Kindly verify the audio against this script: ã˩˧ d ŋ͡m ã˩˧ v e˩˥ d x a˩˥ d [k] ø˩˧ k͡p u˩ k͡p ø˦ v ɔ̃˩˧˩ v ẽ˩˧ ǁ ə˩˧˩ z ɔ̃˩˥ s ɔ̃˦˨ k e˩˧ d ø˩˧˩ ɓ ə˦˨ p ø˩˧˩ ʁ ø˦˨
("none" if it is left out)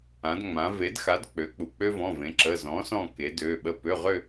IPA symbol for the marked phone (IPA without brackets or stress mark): k͡p